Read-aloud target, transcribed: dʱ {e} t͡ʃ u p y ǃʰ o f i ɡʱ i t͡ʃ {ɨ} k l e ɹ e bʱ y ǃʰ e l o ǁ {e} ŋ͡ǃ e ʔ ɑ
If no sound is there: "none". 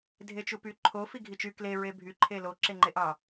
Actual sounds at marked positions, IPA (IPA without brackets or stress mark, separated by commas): e, y, e